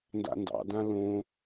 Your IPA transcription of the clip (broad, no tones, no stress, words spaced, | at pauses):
nda̰ndɑ̰dã lõ